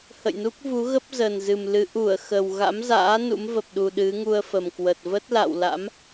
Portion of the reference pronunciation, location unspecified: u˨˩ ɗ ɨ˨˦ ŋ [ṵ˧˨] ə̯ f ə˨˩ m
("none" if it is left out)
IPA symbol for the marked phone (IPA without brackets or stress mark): u˧